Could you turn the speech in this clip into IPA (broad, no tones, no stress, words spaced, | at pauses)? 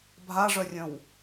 bʱaʐœrʲœ̃w